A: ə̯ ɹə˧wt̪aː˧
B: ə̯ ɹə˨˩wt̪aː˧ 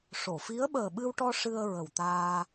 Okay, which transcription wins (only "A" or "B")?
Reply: B